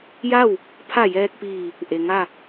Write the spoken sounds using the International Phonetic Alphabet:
j a˥˨ w | pʰ a˧˩ j ɛː˧ k̚ p iː˧˩ | ʔ e˩ ŋ a˥˨

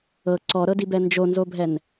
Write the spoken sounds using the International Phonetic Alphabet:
ɤ ǀ ɔ ɾ ɤ d i b ɛ n d͡ʒ o n z o bʱ ɛ n

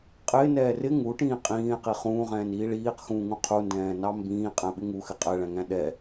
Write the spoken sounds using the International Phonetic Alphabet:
qʼ ɪː n ɛː r ɪ ŋ u ʈ ĩː qʼ ĩː e̯ q i χ ũː ʁ ɛ̃ː n iː ɭ iː q x ũː ŋ ũ qʰ u n d ɛ̃ː n ɑ m b ĩː qʼ æ̃ ɓ ɪ ŋ u x ɪ qʼ ɛ ɭ æ̃ ŋ æ̃ ɗ ɛ

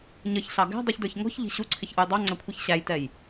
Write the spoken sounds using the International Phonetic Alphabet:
ɲ ʌ ç ɬ ɑ ɡ æ̤ dˤ u ç d ə˞ ç ŋ ɔ̤ ç ʎ i̤ ɕ u ǀʰ ɪ ç ʔ u j dˤ ɑ ŋ͡ǀ æ kʷʰ i ç ɕ æ j t ɛ j

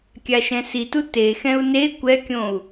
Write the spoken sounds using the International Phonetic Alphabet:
kʲ a ʃ ɛ̃ s i t u t e x ɛ̃ u̯ n e kʷ ɛ kʲ õ u̯

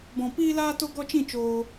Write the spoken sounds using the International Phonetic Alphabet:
b ɔ̃˧ p iː˦ l aː˦ t o˦ ɡ ɔ˦ t͡ʃ ĩ˦˨ t͡ʃ oː˦

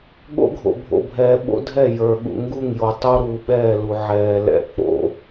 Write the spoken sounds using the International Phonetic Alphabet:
ɠ o̰˦ ɡʱ o̰˨ bʱ o̰˨ bʱ ɛː˨ ɓ o̰˦ dʱ ɛ˦˨ j ə˞˨ ɠ ṵ˨ ŋ ɡ u˦˨ ŋ j o˨ tˤ o˦ ɾ uː˨ ɓ ɛː˦˨ l u˨ ʕ ɛː˨ l ɛ̰˦˨ k͡p o̰˦

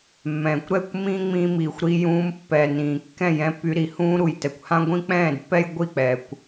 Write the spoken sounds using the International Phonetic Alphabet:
mː ɛ̃ː˨ kʷ ɾ ɛ˦˨ kʷ m ĩː˦ ŋ͡m ĩː˧ m iː˨ xʷ ɾ i˧ j ũː˧ m pː ɛ˨ n ĩː˨ kː ɛ̃˦˨ j ɛ̃˧ pː y˧ ɾ i˨ h ũː˧ ɾ u˨ j t ɛ˨ kʷ h ã˦ ɡʷ ĩ˦ k͡p ɛ̃ː˦˨ d pː ɛ˦ j ɡʷ i˦˨ k͡p ɛ˨ kʷ

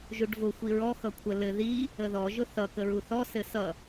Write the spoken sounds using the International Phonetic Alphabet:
ʒ u ɖ v ʊ xʷ i ɹ ɔ x ʌ kʷʰ ə l ɘ ð i | ə ð ɔ ʒ ʊ θ ʌ k ə ɹ u θ ɔ s ɘ s ʌ

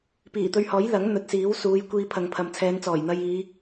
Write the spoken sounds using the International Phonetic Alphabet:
p iː˨˩ t̪ ɵ˧ ɥ h ɔː˨˥ j l ɐ˨˥ ŋ n̪ ɵ˨ t̚ s iː˨˥ w s uː˨˧ j kʷ iː˧ pʰ ɐ˨ ŋ pʰ ɐ˨ m t͡sʰ ɛː˨˧ n t͡s ɔː˨˩ j n̪ ɐ˧ j iː˨˧

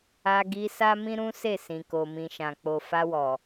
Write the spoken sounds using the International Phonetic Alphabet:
a˧ ɡ i˧ s a˦ m ĩ˦ ɾ ũ˦ s e˦˨ s ĩ˨ k o˨ m ĩ˨ ʃ ã˨ k͡p o˨ f a˧ w ɔ˨

